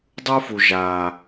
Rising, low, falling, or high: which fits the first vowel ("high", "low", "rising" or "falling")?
high